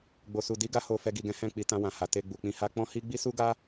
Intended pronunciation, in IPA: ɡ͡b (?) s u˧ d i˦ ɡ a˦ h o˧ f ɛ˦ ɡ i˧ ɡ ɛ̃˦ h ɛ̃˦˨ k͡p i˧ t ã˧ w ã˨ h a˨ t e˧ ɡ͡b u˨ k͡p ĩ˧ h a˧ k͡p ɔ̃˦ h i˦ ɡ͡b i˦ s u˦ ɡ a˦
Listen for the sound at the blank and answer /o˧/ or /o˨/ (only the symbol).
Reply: o˧